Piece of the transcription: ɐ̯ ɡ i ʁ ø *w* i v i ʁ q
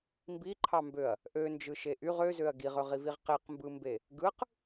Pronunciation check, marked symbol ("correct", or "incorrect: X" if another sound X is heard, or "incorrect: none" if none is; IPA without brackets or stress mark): incorrect: ʁ